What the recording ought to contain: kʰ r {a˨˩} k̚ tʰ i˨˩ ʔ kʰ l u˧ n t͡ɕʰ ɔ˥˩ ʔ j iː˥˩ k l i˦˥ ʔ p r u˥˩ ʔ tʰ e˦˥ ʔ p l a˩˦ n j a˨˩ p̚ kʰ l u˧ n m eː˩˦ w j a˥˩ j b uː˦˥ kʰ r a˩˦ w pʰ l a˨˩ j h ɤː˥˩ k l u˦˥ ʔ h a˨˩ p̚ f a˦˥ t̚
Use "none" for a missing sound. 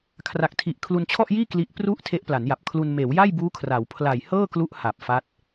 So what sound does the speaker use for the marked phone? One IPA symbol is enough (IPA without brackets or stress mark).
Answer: a˨˩